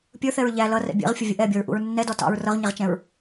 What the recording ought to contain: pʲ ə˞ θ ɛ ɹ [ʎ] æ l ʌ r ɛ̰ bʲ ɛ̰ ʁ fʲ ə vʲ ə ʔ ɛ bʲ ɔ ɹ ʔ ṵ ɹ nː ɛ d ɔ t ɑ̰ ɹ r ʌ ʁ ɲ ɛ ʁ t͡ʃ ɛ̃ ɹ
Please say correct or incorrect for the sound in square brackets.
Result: correct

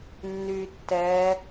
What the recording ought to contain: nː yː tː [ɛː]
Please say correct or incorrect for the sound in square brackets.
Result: correct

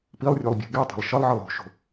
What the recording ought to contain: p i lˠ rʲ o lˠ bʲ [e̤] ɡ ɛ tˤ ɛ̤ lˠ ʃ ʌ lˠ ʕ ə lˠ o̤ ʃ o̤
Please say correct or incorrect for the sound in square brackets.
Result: correct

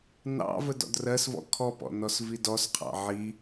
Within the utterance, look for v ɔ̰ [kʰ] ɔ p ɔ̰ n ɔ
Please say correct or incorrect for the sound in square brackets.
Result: correct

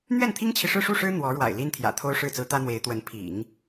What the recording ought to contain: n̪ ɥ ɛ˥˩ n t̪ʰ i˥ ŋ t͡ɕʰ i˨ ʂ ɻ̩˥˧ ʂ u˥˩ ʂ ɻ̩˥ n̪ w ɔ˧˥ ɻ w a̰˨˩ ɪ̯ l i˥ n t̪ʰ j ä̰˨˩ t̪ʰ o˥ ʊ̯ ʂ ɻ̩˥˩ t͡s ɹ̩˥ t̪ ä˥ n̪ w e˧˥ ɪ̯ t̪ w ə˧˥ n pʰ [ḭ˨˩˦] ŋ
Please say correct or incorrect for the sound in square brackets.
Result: correct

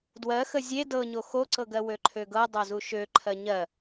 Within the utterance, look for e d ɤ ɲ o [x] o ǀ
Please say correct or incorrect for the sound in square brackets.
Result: correct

